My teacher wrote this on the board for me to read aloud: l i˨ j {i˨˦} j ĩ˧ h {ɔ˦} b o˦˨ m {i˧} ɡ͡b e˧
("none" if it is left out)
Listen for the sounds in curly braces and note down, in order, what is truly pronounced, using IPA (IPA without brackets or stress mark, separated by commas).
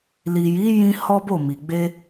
i˨˦, ɔ˦, i˨